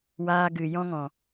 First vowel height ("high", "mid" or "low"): low